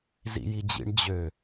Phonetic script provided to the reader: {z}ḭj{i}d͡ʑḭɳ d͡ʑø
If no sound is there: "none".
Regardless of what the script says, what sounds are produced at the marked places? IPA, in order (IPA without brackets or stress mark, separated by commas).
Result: z, i